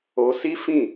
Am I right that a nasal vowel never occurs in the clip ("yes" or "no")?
no